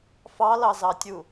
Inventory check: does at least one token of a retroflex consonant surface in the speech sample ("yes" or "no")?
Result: no